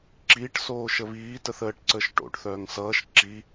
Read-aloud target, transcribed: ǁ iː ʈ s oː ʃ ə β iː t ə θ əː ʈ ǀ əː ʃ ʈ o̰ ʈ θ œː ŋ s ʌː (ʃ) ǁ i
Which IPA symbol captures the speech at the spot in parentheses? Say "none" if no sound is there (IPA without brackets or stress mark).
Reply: ʃ